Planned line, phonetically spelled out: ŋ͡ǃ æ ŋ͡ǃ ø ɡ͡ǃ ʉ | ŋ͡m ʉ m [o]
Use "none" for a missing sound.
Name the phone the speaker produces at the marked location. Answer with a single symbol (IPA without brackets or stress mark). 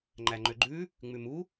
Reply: u